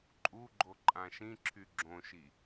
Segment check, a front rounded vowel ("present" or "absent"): present